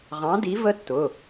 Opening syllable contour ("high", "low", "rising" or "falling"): rising